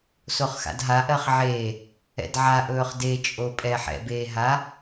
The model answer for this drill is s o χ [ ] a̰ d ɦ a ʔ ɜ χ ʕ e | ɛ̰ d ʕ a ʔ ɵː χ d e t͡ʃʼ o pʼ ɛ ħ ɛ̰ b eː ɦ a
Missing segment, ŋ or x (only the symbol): x